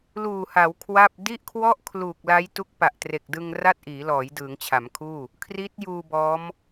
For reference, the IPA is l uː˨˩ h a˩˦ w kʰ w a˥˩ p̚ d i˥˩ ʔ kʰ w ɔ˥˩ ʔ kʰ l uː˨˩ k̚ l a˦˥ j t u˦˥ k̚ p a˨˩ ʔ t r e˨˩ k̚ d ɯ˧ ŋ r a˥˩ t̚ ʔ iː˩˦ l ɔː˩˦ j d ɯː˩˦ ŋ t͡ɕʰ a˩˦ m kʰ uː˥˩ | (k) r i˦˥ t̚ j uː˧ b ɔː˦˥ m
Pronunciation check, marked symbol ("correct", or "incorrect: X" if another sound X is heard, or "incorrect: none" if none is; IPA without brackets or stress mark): incorrect: kʰ